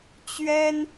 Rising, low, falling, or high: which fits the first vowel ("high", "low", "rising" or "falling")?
high